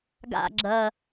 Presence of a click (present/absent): present